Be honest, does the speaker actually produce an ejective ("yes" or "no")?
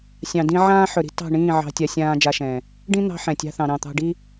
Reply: no